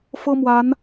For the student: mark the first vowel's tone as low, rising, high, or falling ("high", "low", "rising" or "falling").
high